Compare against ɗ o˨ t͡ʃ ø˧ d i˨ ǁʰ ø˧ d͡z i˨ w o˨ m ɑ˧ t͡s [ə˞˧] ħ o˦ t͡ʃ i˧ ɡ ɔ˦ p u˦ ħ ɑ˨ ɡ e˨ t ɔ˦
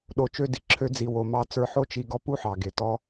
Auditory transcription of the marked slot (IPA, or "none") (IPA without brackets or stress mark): ə˞˧